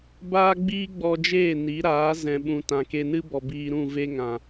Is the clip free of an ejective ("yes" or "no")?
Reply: yes